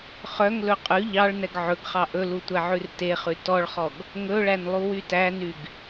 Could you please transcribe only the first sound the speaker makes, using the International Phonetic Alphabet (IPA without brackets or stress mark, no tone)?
χ